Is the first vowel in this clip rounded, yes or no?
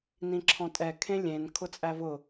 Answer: no